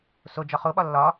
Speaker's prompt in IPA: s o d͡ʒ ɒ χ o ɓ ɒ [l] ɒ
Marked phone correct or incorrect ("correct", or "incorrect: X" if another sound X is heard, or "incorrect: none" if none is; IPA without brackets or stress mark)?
incorrect: lː